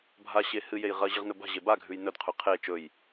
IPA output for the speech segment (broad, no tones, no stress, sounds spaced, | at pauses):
bʱ a ɕ e h ɨ j e j ʁ ɐ ʑ ɨ ʁ n ɵ b a̤ ʑ e b a ɡʱ ʉ j n ɵ d qʰ ʉ qʰ e t͡ʃ ɵ j